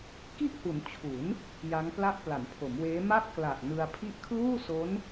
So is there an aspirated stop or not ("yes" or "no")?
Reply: yes